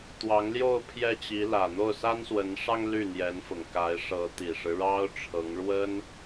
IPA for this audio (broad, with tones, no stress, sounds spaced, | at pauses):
t̪ w ɑ˧˥ ŋ l j o˥˧ ʊ̯ pʰ j ɛ˥˩ t͡ɕ i˧˥ l ä˨˩ n̪ o˥˩ ʊ̯ s a˥ n s w ə˧˥ n ʂ ɑ˥ ŋ l y˥˩ n̪ j ɛ˧˥ n f ʊ˨˩ ŋ k a˧˥ ɪ̯ ʂ ɤ˧˥ t̪ i˨˩ ʂ ɻ̩˦ ɻ ɑ˥ ʊ̯ ʈ͡ʂʰ ɤ˧˥ ŋ ɻ w ə˥ n